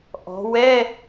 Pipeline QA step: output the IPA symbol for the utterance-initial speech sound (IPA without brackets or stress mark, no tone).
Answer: ʔ